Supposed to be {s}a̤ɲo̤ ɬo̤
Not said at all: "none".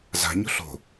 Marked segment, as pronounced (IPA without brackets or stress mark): z